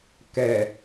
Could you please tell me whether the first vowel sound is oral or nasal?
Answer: oral